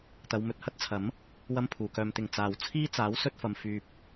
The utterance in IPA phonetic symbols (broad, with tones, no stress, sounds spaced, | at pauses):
t̪ ɐ˨˧ w m ɵ˨ t̚ h ɐ˥ t̚ t͡sʰ ɐ˨˥ m | w ɐ˥ m pʰ uː˨ k œː˧ m t̪ ɪ˧ ŋ t͡s aː˨ w t͡sʰ iː˥ t͡s aː˨˥ w s ɵ˧ t̚ f ɐ˨ m f yː˧ p̚